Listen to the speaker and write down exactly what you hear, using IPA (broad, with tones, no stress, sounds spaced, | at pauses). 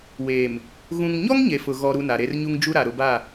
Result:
w eː˨ m | ɣ ũ˨ ŋ ɲ ɔ˦ ŋ ɲ e˨ f ʊ˨ ɣ ɔ˦ ɾ u˦ n a˨ ɾ e˦ r ɲ u˦ ŋ d͡ʒ u˦ ɾ a˨ ɾ ʊ˨ b a˦˨